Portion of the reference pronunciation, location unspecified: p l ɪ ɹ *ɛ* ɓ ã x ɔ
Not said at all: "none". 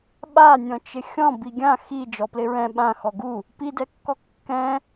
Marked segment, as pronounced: ɛ̃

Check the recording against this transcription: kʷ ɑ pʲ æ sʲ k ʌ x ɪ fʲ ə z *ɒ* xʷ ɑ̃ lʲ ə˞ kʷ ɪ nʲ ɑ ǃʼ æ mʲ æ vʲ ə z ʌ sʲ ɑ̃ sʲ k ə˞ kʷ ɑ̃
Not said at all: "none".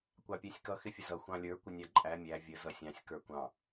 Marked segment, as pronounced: ʌ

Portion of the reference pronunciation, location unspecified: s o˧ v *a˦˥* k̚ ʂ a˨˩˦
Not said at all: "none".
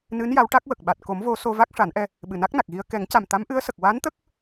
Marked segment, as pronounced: a˦˥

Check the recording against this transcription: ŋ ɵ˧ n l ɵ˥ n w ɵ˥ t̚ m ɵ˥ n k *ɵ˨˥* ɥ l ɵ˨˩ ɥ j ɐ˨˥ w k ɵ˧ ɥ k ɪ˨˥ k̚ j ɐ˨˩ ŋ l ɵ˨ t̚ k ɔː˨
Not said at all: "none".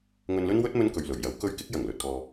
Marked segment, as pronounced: ɵ˨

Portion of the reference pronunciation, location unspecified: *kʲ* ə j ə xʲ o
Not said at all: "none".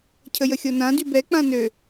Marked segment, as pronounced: cʰ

